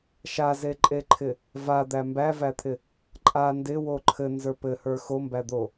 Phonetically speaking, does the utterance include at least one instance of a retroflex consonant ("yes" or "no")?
no